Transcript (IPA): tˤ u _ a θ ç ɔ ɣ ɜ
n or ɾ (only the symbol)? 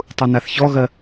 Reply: n